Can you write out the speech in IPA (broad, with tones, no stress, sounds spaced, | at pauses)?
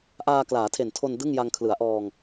ʔ aː˧ k l aː˩˦ tʰ e˨˩ n tʰ o˧ n d ɯ˥˩ ŋ j a˧ ŋ kʰ l ɯ˩˦ a̯ ʔ ɔː˧ ŋ